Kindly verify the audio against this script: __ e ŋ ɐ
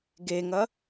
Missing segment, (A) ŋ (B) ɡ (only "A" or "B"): B